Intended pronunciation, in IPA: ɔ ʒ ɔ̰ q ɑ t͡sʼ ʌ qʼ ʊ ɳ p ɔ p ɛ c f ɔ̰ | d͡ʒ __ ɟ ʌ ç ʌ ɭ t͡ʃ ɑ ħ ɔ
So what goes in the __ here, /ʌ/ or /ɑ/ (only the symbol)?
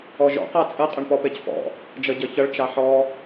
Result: ʌ